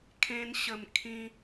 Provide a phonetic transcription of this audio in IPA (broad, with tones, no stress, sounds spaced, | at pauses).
kʰ ẽ˧ n ɕ ə˨˩ m kʰ ĩ˧